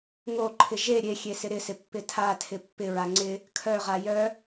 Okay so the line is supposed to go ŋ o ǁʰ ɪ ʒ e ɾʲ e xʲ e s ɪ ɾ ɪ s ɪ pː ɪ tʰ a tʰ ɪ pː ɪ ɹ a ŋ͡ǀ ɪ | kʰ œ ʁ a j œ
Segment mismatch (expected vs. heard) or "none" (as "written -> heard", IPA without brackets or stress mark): ǁʰ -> ǃʰ